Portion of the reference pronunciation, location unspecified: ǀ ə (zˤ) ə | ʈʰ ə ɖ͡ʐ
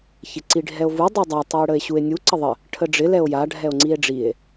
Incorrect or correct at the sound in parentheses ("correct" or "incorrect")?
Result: incorrect